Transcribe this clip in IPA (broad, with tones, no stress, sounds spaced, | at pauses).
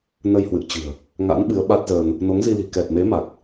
n ə˧ j h w ɨ̰˧˨ ə̯ t͡ɕ ɨ̤˨˩ ə̯ | ŋ a̰˧˥ n ɓ ɨ˨˦ ə̯ ɓ a˦˥ t̚ z əː˧ n | n o˨˦ ŋ z i˧ l i̤˨˩ k ɛ˨˩ t̚ m e˨˦ m a˨˩ k̚